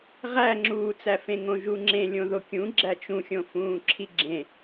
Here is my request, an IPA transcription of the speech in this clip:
ʁ æ ŋ͡ǁ uː t͡s æ f ẽ ŋ õ ʒ u ŋ͡ǁ ẽ lʲ õ ð o kʲ ũ ɡ͡ǁ æ t͡ʃ ũ xʲ õ f ũː ǁʰ i ɡ͡ǁ ẽ

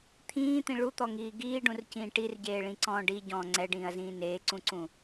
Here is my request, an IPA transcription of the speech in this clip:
t̪ʰ ĩː t̪ ĩ ɭ u t̪ ɔ ŋ iː ɡ iː ɖ ũ r c ĩː ʈ i r ɟ eː ɭ ĩ ǀ ɔ̃ː ɖ i ɟ ɔ̃ː ŋ͡ǀ ɛ ɖ ĩː ɐ̯ z ĩː n eː ǀ ũ ǀ ũ

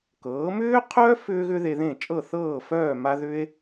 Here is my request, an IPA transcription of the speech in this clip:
k ɤː˩˥ m ʏː˥ qʰ œ˥ f ʏː˥ ɣ ʏ˥ ð e˧ ð ẽ˥˩ t͡ʃʼ ɤ˥˩ θ ɤː˥˩ f œː˥˩ m a˥ ð ʏ˥ e̯

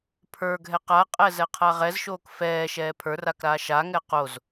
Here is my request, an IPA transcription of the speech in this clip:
pʰ ə˞ ɡʱ ɛ q a qʼ ɛ z ɛ qʰ a ʁ ɛ z ʃ oː k f ɛː ʃ ɛː pʰ ə˞ r a k ɾ aː ʃ a ŋ ɛ q o z

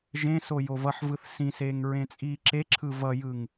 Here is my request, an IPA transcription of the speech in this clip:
ʒ ẽ s o j o v ʌ ħ v ɯ θ s ĩ s eː ŋ ɹ ẽ t͡sʼ iː ǁ e ǁʰ ɯ v ʌ j ɯ ŋ

